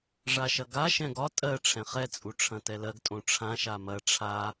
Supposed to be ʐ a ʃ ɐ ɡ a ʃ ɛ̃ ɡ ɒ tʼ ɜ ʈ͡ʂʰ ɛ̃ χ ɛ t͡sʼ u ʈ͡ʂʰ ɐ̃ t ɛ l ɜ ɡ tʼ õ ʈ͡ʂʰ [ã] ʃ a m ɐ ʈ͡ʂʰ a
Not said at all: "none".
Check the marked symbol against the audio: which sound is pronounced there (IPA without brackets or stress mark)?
ã